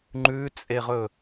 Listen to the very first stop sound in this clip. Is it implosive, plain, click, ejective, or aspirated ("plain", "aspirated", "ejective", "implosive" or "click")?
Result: click